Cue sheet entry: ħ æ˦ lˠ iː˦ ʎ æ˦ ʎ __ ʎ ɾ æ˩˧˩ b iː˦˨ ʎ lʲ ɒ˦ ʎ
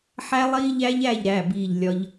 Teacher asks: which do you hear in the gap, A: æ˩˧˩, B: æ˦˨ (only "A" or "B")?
B